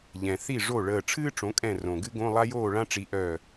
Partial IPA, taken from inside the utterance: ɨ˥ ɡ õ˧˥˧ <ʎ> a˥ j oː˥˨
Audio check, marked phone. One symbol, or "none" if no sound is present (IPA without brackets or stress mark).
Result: lˠ